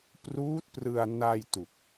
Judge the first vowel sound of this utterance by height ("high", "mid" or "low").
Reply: high